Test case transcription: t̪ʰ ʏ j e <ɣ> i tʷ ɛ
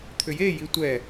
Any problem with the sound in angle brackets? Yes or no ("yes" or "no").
yes